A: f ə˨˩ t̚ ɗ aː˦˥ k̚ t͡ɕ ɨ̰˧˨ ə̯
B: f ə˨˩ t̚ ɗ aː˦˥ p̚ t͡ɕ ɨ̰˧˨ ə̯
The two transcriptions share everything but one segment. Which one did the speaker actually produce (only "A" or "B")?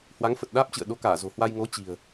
B